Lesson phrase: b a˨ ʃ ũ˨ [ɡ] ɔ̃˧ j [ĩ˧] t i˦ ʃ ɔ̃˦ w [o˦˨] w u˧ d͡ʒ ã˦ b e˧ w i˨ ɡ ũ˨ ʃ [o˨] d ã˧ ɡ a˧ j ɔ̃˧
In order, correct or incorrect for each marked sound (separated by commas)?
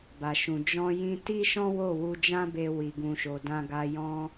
incorrect, correct, correct, correct